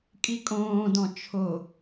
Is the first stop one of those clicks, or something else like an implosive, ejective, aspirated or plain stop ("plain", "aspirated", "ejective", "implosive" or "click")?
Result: ejective